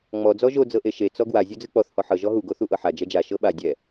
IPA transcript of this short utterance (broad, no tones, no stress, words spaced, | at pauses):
ŋ͡mɔ d͡zɔʒo d͡zɤʔeʃe t͡sɔɡwa zʲod͡zɯk͡pɔθ hɔħɤ ʒɔɦu ɡoθuʔɤħa d͡ʒɛd͡ʒa ʃɤɓa dʲɛ